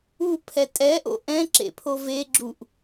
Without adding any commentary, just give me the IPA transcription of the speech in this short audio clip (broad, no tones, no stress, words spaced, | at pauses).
upʰɛ tʼɛ ʔo̰ʔɛ̃ǁḛpʰo veɡ͡ǁuʔ